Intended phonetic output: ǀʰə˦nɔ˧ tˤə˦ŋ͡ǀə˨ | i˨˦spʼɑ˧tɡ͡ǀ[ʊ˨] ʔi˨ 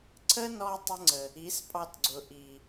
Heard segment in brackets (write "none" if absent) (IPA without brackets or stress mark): ʊ˨